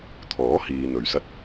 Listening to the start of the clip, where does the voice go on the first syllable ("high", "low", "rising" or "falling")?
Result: rising